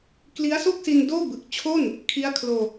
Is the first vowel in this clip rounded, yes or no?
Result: no